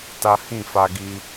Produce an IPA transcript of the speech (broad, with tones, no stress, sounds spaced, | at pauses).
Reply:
t a˦ h ĩ˦˨ f a˧ ɡ i˧